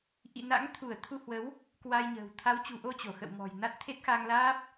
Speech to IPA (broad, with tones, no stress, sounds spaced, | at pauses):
ʔ ḭ˧˨ n a̰˧˥ ŋ t̪ʰ u˧˩ ə̯ t̪ʰ u˧ h w ə˨˦ w | k w a˧ j ɲ ə̤ː˨˩ w t̪ʰ a˨˦ w t͡ɕ ṳ˨˩ ʔ o˧ t͡ɕ o˧˩ x ə̰˧˨ w m ɔ̤˨˩ j n a˦˥ t̚ t̪ʰ e˦˥ t̚ x a˧ ŋ l aː˦˥ p̚